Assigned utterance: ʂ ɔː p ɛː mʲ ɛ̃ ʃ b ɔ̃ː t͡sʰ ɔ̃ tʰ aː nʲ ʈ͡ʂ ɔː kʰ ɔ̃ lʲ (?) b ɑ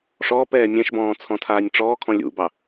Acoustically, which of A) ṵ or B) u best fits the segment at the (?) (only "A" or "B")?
A